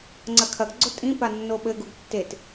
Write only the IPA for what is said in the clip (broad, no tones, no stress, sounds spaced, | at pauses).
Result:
ŋ͡ǀ ɐ kʰ ɐ ɡ ɡ͡ǀ o tʼ ĩ p a nː o ɓ ɘ ɡ u ɡ tː e t